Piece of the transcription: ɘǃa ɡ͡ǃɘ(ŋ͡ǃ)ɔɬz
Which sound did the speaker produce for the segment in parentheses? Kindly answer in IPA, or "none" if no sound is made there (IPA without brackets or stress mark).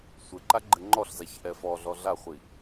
ŋ͡ǃ